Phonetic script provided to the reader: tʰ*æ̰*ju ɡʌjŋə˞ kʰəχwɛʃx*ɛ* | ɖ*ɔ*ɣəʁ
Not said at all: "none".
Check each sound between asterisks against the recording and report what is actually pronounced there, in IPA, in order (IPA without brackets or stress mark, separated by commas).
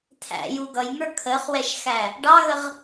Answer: æ̰, æ, ɑ